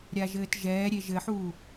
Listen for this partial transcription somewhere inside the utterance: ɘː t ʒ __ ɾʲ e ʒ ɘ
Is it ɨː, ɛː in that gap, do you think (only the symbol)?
ɛː